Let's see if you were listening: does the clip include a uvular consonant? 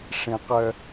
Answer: yes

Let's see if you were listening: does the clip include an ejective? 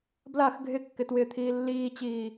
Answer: no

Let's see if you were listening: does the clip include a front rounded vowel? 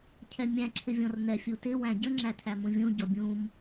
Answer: no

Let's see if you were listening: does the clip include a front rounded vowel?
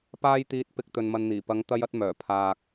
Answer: yes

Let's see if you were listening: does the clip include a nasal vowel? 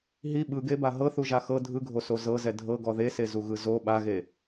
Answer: no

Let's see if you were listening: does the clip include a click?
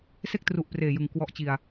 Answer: no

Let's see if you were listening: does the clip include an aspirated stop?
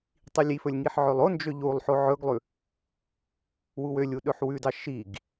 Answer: no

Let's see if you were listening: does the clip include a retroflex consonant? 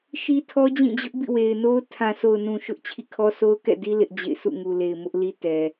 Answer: no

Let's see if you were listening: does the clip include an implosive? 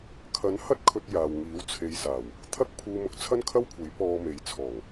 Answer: no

